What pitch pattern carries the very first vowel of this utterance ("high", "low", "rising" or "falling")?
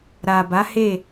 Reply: low